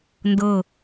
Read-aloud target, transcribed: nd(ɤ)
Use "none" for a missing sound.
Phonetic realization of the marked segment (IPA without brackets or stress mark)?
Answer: ɤ